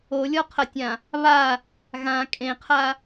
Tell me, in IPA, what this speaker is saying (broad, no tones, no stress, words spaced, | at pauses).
olʲɔqʰɐtʲã | βa | ɣã kʼẽqʰa